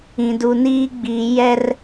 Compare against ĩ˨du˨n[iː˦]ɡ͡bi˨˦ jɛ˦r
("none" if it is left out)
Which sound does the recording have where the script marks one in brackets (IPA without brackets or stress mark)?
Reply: iː˦